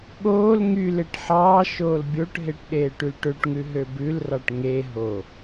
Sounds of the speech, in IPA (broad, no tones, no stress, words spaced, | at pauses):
ɠoːl ŋyleʈ ħɑː ʃoːlbʲoʈɦeʈ ɗeːʈylʈøʈŋʉ ɦøbʉlrɑʈ ŋe ɦo